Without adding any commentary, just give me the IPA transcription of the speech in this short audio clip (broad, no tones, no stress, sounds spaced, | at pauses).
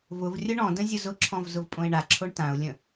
v ʊ v rʲ ʊ ɳ ɔ̃ d ə̃ zʲ ʊ z ʊ ǁʰ ɔ̃ v z ʊ v pʼ õ ɪ̯ ɳ a ǁʰ o ɳ t ã ʊ̯ lʲ ə̃